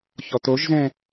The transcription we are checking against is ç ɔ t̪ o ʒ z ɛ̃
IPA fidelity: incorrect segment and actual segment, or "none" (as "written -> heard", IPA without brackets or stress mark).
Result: none